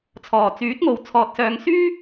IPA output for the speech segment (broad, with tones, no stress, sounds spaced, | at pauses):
t͡sʰ ɔː˨˩ t͡s yː˨˥ t̚ ŋ o˨ w t͡sʰ ɔː˧ t̚ s œː˧ ŋ s yː˥